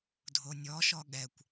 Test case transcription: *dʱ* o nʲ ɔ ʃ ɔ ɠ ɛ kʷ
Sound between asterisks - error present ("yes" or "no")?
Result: no